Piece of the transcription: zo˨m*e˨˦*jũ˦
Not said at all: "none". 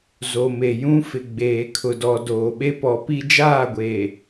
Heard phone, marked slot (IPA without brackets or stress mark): e˨